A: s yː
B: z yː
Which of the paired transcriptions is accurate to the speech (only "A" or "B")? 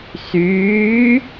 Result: A